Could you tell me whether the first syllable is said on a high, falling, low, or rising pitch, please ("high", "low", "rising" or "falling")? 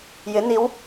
rising